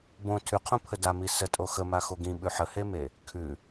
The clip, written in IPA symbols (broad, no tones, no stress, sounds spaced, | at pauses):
b õ tʰ ʉ qʰ õ pʰ ə d a m i s ə tʼ o x ə m a x o ɡ ĩ ɓ ʉ ħ ə h e m e | kʰ ʉ